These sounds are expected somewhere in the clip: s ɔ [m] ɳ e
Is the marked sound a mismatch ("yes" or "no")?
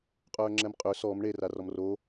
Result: no